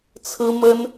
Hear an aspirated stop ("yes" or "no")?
yes